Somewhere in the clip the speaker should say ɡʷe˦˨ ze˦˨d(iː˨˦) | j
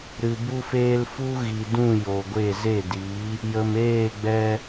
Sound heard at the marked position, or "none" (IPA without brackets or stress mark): iː˨˦